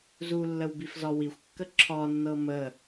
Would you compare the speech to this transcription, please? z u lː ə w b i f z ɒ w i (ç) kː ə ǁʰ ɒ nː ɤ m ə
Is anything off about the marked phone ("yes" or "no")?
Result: yes